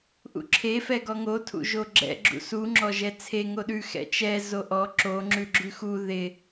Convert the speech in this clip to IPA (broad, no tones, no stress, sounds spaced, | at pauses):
ʔ ṵ ǁʰ e f ɛ ɡ ɔ ŋ o tʰ ṵ ʒ o ɡ͡ǁ ɛ̰ ɡ͡ǁ ṵ s u ŋ͡ǁ ɔ ʒ ɛ t͡sʰ e ŋ o ɗ ʉ x ɛ̰ t͡ʃ ɛ z o ʔ ɔ ǁ o ŋ͡ǁ ʉ ɡ͡ǁ ʉ x u ð ɪ